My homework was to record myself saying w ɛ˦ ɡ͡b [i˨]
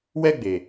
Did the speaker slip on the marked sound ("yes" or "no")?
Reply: yes